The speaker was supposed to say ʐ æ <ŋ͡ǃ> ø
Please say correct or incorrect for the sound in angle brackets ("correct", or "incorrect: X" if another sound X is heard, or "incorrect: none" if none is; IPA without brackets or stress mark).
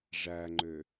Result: correct